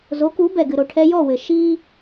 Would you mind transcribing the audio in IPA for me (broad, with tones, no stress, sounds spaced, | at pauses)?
z o˨˦ k u˨˦ b ɛ˨ ɡ ɨ˨ ɾ o˨ ʈʰ ɛ˦ j ɔ˦˨ w ɘ˨ ʃ i˦